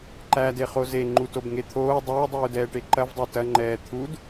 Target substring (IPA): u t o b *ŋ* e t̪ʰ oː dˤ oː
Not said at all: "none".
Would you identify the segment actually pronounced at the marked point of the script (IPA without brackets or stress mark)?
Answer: ŋ